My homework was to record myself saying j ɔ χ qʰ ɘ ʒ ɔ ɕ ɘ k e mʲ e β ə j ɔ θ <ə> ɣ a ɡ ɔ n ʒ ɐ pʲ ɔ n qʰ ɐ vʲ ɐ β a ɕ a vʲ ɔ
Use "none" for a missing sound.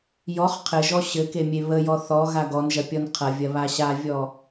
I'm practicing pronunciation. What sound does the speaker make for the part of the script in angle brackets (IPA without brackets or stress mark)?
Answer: ɔ